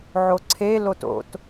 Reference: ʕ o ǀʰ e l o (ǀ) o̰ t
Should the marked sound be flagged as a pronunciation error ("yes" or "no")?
yes